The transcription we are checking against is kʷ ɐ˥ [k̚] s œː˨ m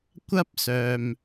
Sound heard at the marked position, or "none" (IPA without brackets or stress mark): p̚